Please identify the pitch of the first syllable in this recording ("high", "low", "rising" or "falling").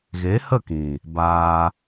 rising